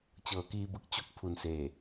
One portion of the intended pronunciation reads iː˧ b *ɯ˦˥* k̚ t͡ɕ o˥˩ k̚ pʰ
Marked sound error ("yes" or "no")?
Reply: yes